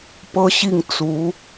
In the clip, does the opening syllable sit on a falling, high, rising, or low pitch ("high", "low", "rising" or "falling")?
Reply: high